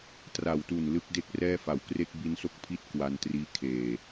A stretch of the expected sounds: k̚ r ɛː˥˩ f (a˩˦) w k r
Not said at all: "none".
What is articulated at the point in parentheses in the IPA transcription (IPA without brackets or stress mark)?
a˨˩